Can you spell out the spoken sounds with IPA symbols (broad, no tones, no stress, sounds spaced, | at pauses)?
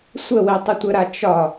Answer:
sʷ ə w e tˤ ɪ tʷ ə ɾ a t͡ʃ ɒ